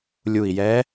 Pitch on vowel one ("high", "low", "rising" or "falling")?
low